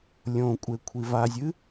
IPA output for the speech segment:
lʲ õ kʷʼ e kʷʰ i v a zʲ ɨ

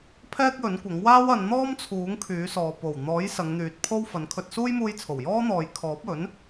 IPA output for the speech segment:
pʰ ɛː˥ k̚ j ɵ˨˥ n kʷ ɐ˨˥ ŋ w aː˥ w ɐ˨˧ n n̪ ɔː˥ m t͡sʰ uː˨˥ ŋ kʰ yː˨˥ s ɔː˨ p o˨˩ w n̪ ɔː˨˥ j s ɐ˨˧ ŋ n̪ yː˨˥ t̚ pʰ o˥ w f ɐ˨˧ n kʰ ɵ˧ t̚ s uː˥ j m uː˧ j t͡sʰ o˨˩ w j ɔː˥ n̪ ɔː˨ j kʰ ɔː˨˥ p̚ ɵ˨˥ n

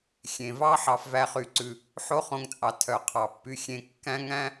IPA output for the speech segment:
xʲ ẽ˩ v ɑ˥ ħ ɑ˨ f v æ˨ χ y˩ ǀ ʉ˩ | ħ o˦ χ õ˨ ŋ t͡sʼ ɑ˩ tʰ œ˩ qʰ ɑ˩ pː y˨ xʲ ẽ˨ kː æ̃˦ ŋ æ̃˦

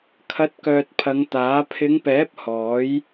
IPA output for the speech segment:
kʰ ɐ˨˥ t̚ k œː˨ t̚ pʰ ɐ˨˧ ŋ t̪ aː˨˥ pʰ ɪ˨˧ ŋ p ɛː˨˥ p̚ h ɔː˨˥ j

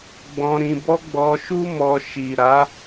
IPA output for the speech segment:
ɡ͡b ɔ̃˧ ɾ ĩ˧ b ɔ˦ ɡ͡b ɔ˧ ʃ u˦ m ɔ˧ ʃ i˨ ɾ a˨˦

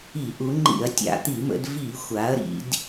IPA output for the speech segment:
i˧˩˧ ʔ u˩˧ ŋ͡ǃ ḭ˧˩˧ ɐ̯ tʲ a̰˧˩˧ t̪ i˧˩˧ m ə̰˩˧ d v i˧˩˧ xʷ a˩˧ ɐ̯ ɾ ḭ˩˧ d

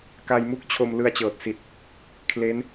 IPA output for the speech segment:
k a˧ j m u˥˩ k̚ t͡ɕʰ o˧ m l ɯ˧ a̯ t͡ɕ ɤː˨˩ t̚ s i˨˩ t̚ | kʰ l e˦˥ n

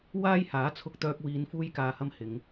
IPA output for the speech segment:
w aː˥ j h aː˨˥ t͡sʰ ʊ˧ k̚ t̪ œː˧ k̚ w iː˨˧ n f uː˥ j k aː˧ h ɐ˥ m h ɪ˨˧ ŋ

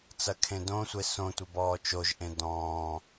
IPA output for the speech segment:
t͡s ɐ kʰ ẽ d õ sʷ e s õ tʷ ɘ b ɔː t͡ʃ o ʒ ʔ ẽ d ɔ̃ː

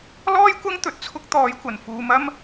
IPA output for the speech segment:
l ɔː˥ j kʷ ɐ˥ ŋ t̪ ɵ˧ t̚ t͡sʰ ʊ˥ k̚ t̪ ɔː˨˥ j kʷ ɐ˨˩ n f uː˨ m ɐ˥ m

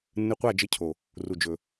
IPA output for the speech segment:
nː ɨ˧ qʷ a˦˨ d͡ʒ ɘ˧ cʰ o˨ | r u˨ d͡ʒ ɵ˨

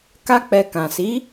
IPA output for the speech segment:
k a˦ k͡p ɛ˧ k ã˨ s i˨˦

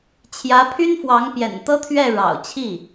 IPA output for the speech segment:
t͡ɕʰ j ä˧˥ pʰ y˥ n f w ɑ˧˥ ŋ p j ɛ̰˨˩ n t̪ ɤ˥ t̪ʰ ɥ ɛ˥˩ ɻ ɑ̰˨˩ ʊ̯ t͡ɕʰ i˥˩

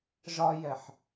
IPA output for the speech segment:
ʒ ɒ j ɛ ħ

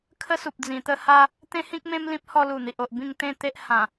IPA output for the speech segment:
kʰ ə˦ s u˨ p̚ d͡z ĩ˨˩ t̪ ə˥˧ h a˦ | t̪ ẽ˦ h ĩ˦ k̚ m ẽ˦ m l ĩ˦ p̚ h ɔ˧ l u˨˩ n̪ i˨ ʔ o˨ ʔ b ĩ˥˧ ŋ t̪ ẽ˥˧ t̪ e˦ ʔ h ã˨˩

